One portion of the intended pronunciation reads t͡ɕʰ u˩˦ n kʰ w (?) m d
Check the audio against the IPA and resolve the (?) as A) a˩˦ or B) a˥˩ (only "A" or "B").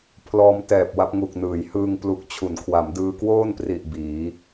A